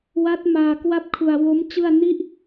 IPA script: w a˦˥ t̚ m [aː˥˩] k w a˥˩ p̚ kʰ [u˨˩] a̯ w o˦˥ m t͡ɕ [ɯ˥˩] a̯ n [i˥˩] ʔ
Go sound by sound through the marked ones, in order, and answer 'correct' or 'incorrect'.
incorrect: aː˧, incorrect: u˧, correct, correct

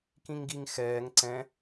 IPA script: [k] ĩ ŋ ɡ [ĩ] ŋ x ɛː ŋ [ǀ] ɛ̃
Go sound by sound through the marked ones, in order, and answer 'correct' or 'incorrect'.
correct, incorrect: i, correct

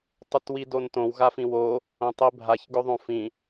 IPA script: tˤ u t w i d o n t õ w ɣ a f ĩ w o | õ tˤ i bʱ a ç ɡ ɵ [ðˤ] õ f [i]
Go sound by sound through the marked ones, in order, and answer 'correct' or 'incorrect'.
correct, incorrect: ĩ

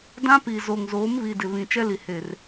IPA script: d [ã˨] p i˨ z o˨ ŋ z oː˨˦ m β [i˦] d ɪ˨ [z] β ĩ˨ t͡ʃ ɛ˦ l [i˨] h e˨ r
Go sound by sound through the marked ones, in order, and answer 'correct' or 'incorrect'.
incorrect: ã˦, incorrect: i˨, incorrect: none, correct

